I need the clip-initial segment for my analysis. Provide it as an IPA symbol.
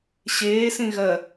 ɕ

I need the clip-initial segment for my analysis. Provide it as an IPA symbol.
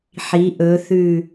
ħ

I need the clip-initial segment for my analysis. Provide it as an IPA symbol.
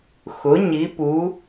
x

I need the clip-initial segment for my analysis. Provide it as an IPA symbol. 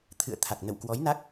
t̪ʰ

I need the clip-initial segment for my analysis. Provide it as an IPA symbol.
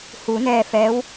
h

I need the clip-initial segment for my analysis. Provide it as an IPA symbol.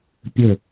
pʲ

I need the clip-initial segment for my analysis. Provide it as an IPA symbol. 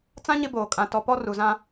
t͡s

